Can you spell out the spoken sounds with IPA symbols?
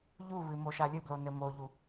ʎ u β ɨ m o ʃ a lʲ ɨ b l o n ɘ m o ʎ u

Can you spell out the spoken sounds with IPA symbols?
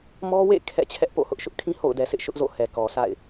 m ɔ˦ w ḛ˦˨ kʰ ɛ̰˦˨ t͡ɕʰ ɛ˦ ʔ p o̰˦˨ h ʊ˦ ʔ ʃ ʊ˦ ʔ kʰ ĩ˦ h o̰˦˨ ʊ̯ d ɛ˨ s ɪ˦ ʔ ʃ ʊ˦ ʔ z o̰˦˨ h ɛ˨ k ɔ˨ s a̰˦˨ ɪ̯

